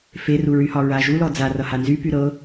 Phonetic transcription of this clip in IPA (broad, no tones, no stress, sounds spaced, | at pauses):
f e r u ɹ y h ɒ ɹ a ʒ u l ɔ d͡z a r ʌ h a n z y p y ɾ ɤ